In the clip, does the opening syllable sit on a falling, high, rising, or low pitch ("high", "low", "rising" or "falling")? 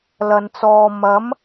low